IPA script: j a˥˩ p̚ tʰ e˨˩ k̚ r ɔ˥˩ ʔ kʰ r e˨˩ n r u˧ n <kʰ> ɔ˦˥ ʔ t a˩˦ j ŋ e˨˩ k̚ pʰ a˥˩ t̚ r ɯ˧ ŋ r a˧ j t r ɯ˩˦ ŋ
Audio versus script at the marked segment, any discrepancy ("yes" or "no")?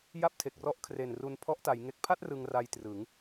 yes